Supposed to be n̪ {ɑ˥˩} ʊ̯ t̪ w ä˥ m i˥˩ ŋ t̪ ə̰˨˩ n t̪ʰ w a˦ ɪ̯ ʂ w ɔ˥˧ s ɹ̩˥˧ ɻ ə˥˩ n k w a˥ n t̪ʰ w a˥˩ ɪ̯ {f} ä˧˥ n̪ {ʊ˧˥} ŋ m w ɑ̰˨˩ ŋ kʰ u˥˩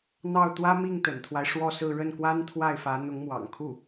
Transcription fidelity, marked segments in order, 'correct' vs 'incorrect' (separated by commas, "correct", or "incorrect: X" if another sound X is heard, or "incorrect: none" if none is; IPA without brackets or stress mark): correct, correct, correct